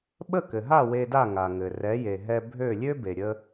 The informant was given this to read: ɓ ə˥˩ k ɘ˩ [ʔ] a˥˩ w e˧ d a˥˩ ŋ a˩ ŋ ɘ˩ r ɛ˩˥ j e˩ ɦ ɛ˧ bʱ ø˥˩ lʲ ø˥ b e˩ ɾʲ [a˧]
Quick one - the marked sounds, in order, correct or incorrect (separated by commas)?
incorrect, incorrect